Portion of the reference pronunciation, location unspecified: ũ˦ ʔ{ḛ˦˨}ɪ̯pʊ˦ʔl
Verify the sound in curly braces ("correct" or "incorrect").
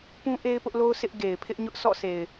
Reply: incorrect